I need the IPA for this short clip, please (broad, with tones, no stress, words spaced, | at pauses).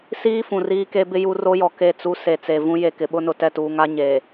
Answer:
siː˦ fũ˨riː˦ke˦bɪ˦ ju˦ ro˦jɔ˨ ke˦˨t͡su˦ se˨t͡se˨ vũ˦ je˨kɪ˨ɓʊ˦nʊ˨ tɛ˦˨tuː˨ŋa˦ ɲeː˨